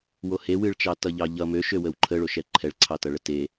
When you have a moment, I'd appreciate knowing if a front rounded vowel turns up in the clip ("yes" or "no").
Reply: yes